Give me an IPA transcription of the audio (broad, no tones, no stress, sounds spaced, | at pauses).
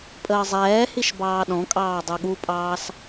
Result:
pʼ əː zˤ ɛː h i ʃ b ɑː ɗ ɔ̃ kʼ ɑː dˤ u ɠ u pʼ ɑː s